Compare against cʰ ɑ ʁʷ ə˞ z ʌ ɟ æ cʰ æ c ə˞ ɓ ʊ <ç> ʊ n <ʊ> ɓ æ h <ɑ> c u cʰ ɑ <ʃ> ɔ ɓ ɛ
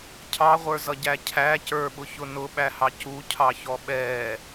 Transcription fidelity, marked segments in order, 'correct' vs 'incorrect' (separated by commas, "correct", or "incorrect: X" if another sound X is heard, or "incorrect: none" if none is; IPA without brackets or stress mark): correct, correct, correct, incorrect: ç